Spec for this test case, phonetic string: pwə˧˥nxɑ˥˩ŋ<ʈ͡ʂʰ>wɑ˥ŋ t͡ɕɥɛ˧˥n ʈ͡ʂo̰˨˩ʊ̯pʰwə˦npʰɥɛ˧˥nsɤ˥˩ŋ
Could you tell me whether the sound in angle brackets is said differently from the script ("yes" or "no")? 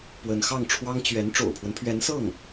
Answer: no